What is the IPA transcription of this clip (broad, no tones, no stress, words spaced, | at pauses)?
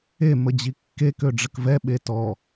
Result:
e məd͡ʑikːe køɖ͡ʐəkvɛ ɓetɔ